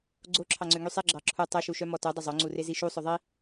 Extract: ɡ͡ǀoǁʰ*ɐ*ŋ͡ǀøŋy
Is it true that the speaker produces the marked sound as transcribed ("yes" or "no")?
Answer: no